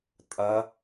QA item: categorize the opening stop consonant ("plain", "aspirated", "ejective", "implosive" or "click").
ejective